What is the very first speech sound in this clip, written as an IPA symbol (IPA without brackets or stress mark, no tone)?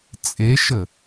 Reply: t͡sʼ